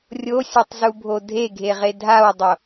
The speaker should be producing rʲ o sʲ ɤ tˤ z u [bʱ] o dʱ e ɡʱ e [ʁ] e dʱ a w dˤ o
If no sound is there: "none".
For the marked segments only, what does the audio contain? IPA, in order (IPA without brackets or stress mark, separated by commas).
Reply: bʱ, ʁ